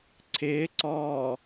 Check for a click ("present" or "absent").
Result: present